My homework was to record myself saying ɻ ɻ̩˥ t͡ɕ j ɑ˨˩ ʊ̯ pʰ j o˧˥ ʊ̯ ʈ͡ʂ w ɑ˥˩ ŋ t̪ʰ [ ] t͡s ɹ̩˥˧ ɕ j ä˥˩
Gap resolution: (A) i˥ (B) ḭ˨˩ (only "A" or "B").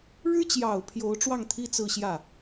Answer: A